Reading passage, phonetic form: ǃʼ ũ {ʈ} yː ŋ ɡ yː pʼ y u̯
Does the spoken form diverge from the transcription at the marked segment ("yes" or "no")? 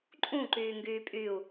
yes